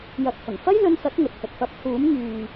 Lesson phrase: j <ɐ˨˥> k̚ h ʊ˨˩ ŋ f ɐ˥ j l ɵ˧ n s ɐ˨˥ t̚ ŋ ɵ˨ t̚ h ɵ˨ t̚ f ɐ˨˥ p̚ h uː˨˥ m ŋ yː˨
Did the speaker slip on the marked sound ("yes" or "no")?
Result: no